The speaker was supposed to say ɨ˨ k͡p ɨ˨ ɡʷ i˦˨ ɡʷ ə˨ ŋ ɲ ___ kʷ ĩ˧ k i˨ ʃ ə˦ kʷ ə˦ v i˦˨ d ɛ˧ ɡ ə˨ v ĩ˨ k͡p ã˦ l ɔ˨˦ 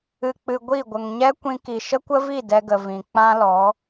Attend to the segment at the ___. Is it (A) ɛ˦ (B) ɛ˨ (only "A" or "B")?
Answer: A